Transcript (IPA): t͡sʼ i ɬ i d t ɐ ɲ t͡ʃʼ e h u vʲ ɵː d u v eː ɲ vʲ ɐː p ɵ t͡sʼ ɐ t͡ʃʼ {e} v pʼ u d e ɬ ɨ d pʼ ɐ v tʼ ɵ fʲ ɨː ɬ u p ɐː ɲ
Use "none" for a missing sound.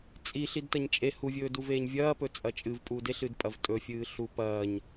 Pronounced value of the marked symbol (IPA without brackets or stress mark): ɨ